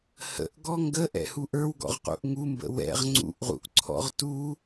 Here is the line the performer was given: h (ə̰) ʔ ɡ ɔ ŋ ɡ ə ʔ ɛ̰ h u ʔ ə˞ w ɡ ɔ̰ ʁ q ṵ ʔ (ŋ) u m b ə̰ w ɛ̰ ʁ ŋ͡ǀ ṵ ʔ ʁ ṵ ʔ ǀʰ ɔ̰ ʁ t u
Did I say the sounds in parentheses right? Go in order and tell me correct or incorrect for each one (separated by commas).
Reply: correct, correct